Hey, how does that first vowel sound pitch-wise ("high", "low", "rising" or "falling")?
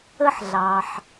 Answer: high